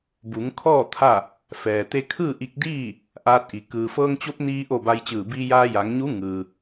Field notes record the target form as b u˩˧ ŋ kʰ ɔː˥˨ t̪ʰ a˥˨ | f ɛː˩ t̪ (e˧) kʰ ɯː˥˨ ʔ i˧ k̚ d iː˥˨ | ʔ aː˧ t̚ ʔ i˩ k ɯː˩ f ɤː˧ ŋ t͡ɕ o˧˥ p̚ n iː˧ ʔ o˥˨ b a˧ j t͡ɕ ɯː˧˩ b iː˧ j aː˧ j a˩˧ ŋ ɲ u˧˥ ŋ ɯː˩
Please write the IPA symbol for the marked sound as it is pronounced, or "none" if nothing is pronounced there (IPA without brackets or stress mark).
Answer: e˧